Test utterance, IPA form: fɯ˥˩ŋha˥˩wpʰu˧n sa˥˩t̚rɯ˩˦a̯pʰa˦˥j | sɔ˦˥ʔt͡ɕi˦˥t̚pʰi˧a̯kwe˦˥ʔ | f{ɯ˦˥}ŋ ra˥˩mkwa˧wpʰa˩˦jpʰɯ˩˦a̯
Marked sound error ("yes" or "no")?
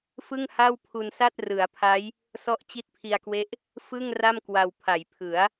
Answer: yes